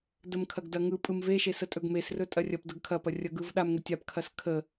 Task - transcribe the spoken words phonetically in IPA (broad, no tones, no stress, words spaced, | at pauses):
dəmkʰɐɡdɐŋɯ pʼɯmve ʃesətʼɵɡmes rɵtʼɐrʲɐp dəɡkʰɐpɐ rʲɐɡɯvɗam ŋɵtʲap kʰɐskʰə